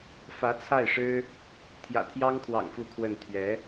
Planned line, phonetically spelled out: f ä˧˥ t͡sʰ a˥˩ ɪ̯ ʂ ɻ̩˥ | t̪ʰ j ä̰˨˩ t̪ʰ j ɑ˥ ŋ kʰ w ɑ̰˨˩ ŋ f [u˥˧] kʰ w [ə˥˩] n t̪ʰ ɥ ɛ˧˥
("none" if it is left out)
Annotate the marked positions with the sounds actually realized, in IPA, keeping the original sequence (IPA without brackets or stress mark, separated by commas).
u˥˧, ə˥˩